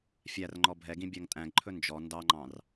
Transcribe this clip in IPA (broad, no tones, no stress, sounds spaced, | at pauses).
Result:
fʲ æ r ŋ͡ǃ ɔ bʱ ɛ ɡ ĩ bʲ æ ŋ tʼ æ̃ ɡ ǃʰ ɵ n d͡ʒ ɔ n d ɑ ŋ͡ǃ ɑ̃ r